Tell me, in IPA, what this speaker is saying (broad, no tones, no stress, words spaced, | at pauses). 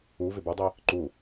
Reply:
uvɪ bɛdˤi | ǃu